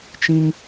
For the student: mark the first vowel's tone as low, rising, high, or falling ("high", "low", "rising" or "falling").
high